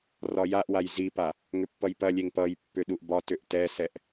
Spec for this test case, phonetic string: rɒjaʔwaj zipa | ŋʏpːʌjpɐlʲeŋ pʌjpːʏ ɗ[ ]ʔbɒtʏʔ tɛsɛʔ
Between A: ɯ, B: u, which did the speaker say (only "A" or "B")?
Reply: B